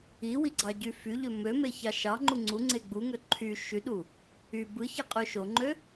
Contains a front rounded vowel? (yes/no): yes